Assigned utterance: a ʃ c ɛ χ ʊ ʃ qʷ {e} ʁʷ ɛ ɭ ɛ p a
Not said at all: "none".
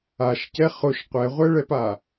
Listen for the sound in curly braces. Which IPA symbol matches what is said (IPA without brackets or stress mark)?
ɛ